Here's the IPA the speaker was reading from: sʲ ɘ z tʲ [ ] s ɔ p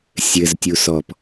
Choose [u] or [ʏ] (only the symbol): u